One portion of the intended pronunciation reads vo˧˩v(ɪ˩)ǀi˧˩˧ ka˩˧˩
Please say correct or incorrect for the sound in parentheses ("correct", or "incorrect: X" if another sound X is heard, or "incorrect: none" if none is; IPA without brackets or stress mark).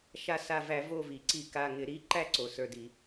incorrect: i˩